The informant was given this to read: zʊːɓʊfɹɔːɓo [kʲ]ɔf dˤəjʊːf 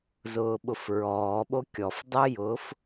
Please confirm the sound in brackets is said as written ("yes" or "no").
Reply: yes